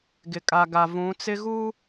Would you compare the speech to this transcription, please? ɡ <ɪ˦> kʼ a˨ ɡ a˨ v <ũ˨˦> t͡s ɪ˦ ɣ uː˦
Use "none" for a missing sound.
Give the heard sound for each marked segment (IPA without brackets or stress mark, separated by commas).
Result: ɪ˨, ũ˨˦